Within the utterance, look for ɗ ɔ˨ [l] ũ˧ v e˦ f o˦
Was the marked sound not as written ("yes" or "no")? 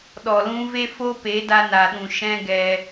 no